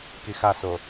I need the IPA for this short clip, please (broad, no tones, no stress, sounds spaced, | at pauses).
k i x a s o